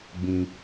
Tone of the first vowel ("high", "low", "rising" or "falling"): high